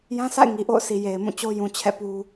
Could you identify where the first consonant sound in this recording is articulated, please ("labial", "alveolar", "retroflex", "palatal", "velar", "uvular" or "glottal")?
palatal